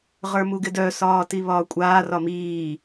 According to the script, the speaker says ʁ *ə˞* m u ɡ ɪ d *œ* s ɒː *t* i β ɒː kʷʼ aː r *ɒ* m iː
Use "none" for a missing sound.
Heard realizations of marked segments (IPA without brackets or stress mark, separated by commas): ə˞, œ, t, ɒ